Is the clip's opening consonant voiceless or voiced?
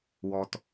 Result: voiced